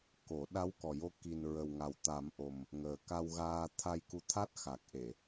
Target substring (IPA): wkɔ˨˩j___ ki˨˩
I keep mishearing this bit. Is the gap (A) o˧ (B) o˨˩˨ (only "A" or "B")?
A